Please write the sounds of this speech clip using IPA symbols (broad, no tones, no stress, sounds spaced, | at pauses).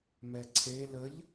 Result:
m ɛ ǀʰ e l ə ʎ